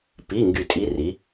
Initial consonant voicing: voiceless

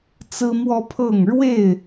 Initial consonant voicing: voiceless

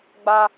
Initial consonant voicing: voiced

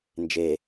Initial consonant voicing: voiced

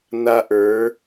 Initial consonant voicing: voiced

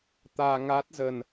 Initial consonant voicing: voiceless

